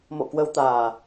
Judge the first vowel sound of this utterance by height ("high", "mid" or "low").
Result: mid